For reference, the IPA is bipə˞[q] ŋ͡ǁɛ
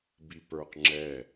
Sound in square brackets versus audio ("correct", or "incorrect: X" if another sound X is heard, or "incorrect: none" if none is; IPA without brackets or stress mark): correct